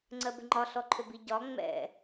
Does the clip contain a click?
yes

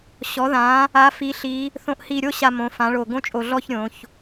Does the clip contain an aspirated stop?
no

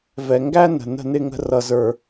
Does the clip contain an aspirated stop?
no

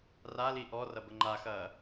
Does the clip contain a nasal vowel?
no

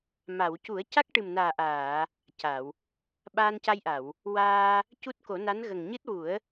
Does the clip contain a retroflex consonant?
yes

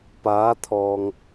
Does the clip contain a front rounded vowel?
no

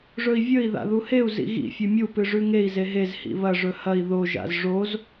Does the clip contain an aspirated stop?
no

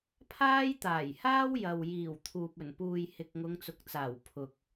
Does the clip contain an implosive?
no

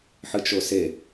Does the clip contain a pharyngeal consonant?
yes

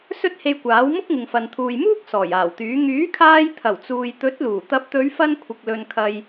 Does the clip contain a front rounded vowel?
yes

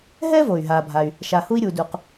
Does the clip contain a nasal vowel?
no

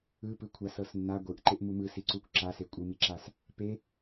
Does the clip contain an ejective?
yes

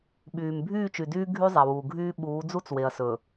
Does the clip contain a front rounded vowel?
yes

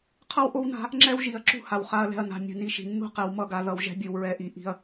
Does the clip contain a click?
yes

